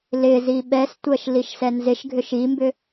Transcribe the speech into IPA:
l ɪ z i ɓ ɛ s tʷ ɜ ʃ l i ʃ s ɛ n z ɪ ʃ ɡʱ ʏ ʃ i m b ʏ

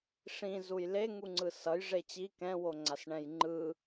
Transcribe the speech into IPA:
ʂ ĩ z u j l e ŋ u ŋ͡ǀ ɯ s ʌ j ʐ e t͡ɕ i k ɛ̃ w o ŋ͡ǀ a s ɳ ɛ̃ j ŋ͡ǃ ɯ

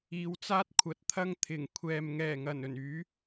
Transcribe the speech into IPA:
iː˨˧ w t͡s aː˥ t̚ kʷʰ ɐ˨˥ t̚ t̪ʰ ɐ˥ ŋ t̪ʰ ɪ˨˩ ŋ kʷʰ ɛː˨ m ŋ ɛː˨˩ ŋ ɐ˨˩ n ɵ˨˩ n yː˨˥

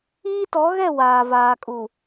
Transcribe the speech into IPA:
iː˦ t ɔ˨˦ ɣ ɛ˦˨ w aː˨ v aː˨ kʼ u˨

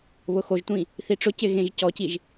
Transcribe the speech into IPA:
β ʊ x o ʒ tʷ ĩ | θ i ʈ͡ʂ ʊ c ɪ ɣ ẽ ʒ c ɔ c i ʒ

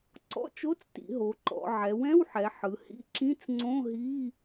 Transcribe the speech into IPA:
ǀ ɔ̰˧˥˧ t͡ʃ o˧˥˧ t͡s t ḭ˩˧ ɦ o˩˧ ǃ ɔ̰˩˧ ʕ ɛ˩˧ w ɛ̃˧˥˧ w ħ ɛ˩˧ ħ ɯ˩˧ h ḭ˧˥˧ ǁ ĩ˧˥˧ t͡s ŋ͡ǀ õ˧˥˧ ɦ i˧˥˧

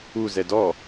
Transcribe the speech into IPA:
u z ɛ d ɔ

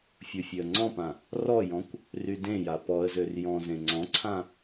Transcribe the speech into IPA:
fʲ u fʲ ø ə̯ ŋ͡ǀ ɔ̃ p ã | r ɔ j ɔ̃ kʷ | r y d ẽ j a p ɔ ə̯ z ø r j ɔ̃ z ẽ ŋ͡ǀ ɔ̃ ǀʰ ã

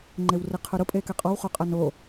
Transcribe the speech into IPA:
ŋ͡ǃ e w r e qʰ ʊ ɾ ʊ pʼ e k ɛ qʼ ɔ w χ o qʼ a n o

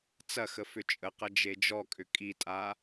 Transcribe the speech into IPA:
t͡s ɐ x ə f ʏ t͡ʃʼ ə q ɐ d͡ʒ e d͡ʒ ɔ kʼ ʏ kʼ i tʼ a

